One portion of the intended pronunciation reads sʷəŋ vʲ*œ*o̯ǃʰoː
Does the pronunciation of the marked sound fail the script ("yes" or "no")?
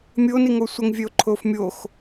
no